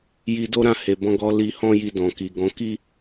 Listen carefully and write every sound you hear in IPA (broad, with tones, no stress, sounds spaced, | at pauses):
j i˧ d o˦ ɾ ã˦˨ h e˨ b ɔ̃˧ ɡ ɔ˧ l i˧ h ɔ̃˦ j i˧ d ɔ̃˨ k i˨ ɡ ɔ̃˨˦ k i˦